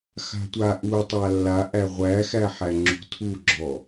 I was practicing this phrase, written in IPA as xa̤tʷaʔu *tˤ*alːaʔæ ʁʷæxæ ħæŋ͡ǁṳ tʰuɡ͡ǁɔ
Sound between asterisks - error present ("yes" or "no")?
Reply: no